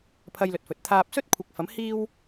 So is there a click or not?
no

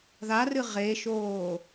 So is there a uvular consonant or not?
yes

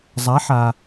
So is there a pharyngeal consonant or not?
yes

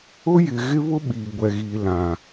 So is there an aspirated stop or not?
no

